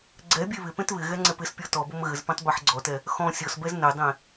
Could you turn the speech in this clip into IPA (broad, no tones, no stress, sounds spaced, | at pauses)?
ɡ͡ǀ ɛ bʲ e β ɪ p ẽ t β ɪ ɣ ɛ ŋ͡ǀ ɛ p ɪ s pʲ ɔ t ɔ b o m ɣ ɘ z p ẽ tˤ b e ħ ɡ͡ǀ ɔ t ɛ | x ɔ̃ sʲ ɔ s b ɛ z n ɘ dˤ ẽ